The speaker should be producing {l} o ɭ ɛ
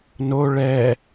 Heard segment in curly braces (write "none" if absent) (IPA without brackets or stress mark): n